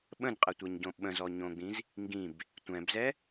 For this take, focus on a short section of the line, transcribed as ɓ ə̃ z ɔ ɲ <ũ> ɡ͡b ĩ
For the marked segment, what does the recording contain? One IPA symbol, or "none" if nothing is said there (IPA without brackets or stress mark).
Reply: õ